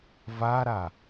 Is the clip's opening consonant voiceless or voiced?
voiced